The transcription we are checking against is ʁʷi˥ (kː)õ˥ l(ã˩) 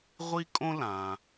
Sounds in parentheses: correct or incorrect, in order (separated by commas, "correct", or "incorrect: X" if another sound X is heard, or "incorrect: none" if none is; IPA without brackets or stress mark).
incorrect: kʼ, correct